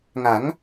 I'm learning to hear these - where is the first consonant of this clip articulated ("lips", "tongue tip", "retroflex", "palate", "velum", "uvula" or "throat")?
velum